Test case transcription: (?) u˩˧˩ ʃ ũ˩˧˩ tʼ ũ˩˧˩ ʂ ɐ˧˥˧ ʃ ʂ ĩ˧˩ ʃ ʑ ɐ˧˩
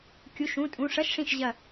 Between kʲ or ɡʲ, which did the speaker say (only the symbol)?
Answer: kʲ